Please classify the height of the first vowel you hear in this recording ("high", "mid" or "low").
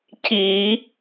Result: high